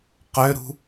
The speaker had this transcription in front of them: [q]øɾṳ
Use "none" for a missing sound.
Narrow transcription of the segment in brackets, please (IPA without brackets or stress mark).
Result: q